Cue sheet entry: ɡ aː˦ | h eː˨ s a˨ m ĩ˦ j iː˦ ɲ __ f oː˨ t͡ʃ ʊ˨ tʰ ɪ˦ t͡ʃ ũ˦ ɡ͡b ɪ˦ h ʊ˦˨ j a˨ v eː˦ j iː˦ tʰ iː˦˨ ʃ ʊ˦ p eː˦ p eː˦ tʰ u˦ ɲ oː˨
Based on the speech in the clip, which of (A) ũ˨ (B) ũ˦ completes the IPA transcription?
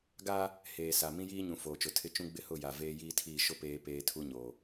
A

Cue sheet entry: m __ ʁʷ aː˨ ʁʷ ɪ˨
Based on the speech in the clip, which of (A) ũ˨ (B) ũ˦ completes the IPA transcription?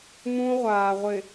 B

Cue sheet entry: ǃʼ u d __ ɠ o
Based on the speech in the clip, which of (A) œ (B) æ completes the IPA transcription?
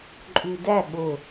B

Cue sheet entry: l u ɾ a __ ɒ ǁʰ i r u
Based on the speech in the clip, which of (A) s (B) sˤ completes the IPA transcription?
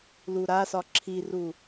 A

